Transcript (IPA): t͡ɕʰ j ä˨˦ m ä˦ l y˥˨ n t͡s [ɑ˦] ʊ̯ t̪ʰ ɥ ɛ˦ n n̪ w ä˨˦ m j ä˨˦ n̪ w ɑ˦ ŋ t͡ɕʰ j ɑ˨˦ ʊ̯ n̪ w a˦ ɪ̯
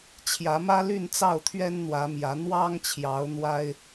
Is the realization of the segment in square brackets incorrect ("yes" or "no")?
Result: yes